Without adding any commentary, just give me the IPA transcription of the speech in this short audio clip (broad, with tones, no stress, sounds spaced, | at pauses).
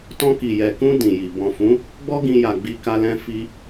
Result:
t ɔ̃˧ k i˨ j ɛ˨ k ũ˧ d ĩ˨ j i˨ b ɔ̃˨ f ũ˨˦ | ɡ͡b ɔ˦ ɡ ĩ˧ j a˨ ɡ͡b i˧ k a˧ l ɛ̃˧ f i˧